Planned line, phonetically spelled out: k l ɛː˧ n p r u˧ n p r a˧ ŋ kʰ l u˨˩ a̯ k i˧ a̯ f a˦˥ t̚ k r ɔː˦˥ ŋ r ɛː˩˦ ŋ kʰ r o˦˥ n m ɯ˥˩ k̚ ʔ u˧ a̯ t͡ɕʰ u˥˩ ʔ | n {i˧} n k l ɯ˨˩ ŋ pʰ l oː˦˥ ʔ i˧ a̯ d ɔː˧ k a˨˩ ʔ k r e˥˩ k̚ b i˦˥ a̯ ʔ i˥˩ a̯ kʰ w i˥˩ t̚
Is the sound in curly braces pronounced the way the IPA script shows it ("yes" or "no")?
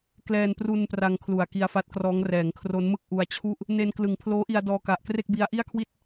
no